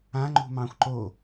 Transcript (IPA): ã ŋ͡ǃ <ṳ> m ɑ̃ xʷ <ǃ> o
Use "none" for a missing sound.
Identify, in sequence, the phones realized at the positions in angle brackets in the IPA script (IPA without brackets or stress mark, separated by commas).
ṳ, ǃ